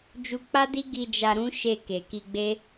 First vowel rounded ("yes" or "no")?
yes